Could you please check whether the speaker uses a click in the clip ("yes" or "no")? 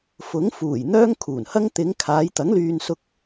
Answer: no